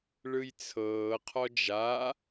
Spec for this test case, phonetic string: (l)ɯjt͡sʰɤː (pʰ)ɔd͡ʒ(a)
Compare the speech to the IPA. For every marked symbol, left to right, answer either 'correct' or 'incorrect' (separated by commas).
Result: incorrect, incorrect, correct